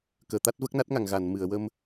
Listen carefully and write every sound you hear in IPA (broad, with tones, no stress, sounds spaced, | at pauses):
k əː˨˩˨ t̪ a˦˥ t̚ v ə˦˥ k̚ n a˦˥ t̚ ŋ a˨˩˨ ŋ ɣ a˨˩˨ n m ɨ˨˩˨ ə̯ w ə˧ m